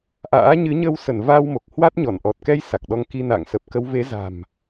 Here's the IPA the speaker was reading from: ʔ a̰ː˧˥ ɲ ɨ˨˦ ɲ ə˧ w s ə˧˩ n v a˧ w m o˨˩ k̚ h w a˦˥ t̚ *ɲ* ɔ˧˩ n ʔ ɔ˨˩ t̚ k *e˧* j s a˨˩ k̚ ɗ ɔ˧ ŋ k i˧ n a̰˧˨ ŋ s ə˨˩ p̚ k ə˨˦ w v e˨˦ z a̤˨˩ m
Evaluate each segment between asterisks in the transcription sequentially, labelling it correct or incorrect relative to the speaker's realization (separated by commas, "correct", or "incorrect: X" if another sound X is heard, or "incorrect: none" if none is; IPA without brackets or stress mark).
correct, incorrect: ɛ˧